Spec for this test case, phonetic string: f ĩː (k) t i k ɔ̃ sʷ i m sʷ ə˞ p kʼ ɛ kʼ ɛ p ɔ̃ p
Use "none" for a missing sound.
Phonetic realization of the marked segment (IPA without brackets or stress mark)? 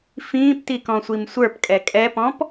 p